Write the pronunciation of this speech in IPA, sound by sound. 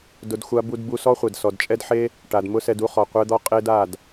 d ʊ˧ d xʷ a˦ b u˧ d b u˧ s ɔ˦ χʷ ɛ˨ d s ɔ˨ d t͡ʃʼ ɛ˦ d ħ e˦ | ʈ a˨ d m ʊ˦ s ɛ˧ d u˦ χ ɔ˨ qʷ ɛ˧ d̪ ɔ˧ qʼ e˦ d a˦˨ d

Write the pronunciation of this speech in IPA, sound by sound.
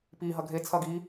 p i ɦ ɐ ɡʱ e t͡sʰ ɐ ɡ i

